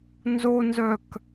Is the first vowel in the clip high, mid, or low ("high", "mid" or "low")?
mid